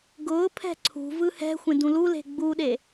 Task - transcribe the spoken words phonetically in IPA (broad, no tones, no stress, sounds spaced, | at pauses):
ɡ ʊː pʰ ɛ̤ ǀʰ ṳ v ɯ h ɛ̤ xʷ ẽ d ũ l u l e̤ ɡ͡b u ɗ e